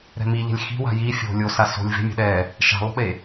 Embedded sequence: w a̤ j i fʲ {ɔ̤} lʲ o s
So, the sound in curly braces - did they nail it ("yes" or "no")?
no